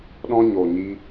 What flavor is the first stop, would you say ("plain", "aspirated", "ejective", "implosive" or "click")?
implosive